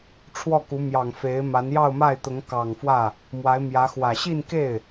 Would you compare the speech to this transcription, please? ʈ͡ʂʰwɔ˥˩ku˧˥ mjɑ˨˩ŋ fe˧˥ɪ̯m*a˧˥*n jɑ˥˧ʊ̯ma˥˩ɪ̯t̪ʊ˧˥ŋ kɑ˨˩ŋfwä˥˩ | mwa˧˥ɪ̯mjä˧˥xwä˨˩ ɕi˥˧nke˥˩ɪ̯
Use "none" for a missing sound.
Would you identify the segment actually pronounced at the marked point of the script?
a˧˥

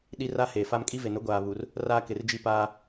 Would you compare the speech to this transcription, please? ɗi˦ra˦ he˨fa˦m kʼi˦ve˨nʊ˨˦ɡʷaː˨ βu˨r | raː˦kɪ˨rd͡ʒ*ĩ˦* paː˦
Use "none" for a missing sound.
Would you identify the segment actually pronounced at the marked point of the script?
i˦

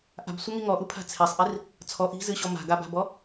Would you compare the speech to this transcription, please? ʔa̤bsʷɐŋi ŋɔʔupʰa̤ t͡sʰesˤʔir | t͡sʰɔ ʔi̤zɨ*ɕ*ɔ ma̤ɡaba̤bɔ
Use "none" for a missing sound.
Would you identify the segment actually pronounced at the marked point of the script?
ɕ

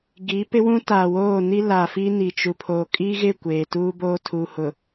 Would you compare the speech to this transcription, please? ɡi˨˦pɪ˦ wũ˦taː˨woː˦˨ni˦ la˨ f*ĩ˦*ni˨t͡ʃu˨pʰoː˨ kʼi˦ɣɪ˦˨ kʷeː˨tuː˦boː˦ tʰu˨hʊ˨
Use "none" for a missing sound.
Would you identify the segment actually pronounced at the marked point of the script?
i˦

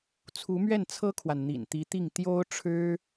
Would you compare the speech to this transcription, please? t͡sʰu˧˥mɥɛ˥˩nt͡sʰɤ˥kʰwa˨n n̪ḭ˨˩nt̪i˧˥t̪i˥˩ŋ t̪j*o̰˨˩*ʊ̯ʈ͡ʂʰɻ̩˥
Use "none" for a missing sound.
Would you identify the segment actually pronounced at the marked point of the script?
o˥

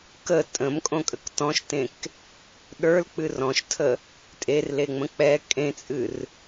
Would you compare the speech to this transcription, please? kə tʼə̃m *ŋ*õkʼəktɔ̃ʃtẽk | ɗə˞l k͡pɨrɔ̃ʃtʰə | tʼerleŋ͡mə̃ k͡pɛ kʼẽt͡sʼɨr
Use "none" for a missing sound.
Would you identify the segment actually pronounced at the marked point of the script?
kʼ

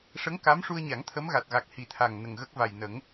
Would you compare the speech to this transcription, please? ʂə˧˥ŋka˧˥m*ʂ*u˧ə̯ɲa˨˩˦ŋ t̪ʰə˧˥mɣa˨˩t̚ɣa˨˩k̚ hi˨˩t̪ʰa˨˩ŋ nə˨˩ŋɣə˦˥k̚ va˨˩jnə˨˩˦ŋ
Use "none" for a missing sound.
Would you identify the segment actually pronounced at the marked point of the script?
ʂ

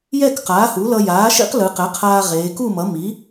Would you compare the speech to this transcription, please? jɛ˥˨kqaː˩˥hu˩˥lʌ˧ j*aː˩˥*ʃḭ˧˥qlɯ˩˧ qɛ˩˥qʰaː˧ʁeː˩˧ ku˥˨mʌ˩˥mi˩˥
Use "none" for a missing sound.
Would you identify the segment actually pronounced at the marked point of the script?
aː˩˥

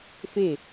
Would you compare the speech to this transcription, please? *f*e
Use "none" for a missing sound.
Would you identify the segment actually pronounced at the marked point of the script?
f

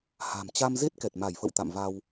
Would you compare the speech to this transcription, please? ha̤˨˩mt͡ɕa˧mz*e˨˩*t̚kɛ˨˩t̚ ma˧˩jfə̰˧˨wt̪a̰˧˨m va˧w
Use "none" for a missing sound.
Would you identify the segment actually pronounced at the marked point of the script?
e˦˥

